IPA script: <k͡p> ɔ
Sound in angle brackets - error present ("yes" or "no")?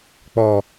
no